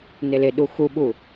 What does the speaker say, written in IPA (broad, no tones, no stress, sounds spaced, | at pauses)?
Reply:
n ɪ l ɪ ɗ u x u ɓ u